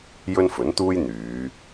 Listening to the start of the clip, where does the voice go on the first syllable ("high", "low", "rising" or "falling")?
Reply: high